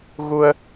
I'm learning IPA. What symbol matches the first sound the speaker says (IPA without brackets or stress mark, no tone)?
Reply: ɣ